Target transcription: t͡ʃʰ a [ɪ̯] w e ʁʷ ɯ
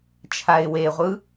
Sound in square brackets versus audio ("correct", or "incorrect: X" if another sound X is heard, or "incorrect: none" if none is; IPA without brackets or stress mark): correct